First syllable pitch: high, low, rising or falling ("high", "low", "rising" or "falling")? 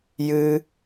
high